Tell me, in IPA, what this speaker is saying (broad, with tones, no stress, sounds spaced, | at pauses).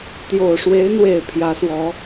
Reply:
t̪ j o˨˩ ʊ̯ ʂ w e˧˥ ɪ̯ n̪ w e˨˩ ɪ̯ pʰ j ä˧˥ s w ɔ˧˥